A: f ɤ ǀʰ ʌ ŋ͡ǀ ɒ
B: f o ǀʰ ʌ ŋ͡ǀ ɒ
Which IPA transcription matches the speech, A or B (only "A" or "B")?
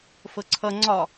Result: A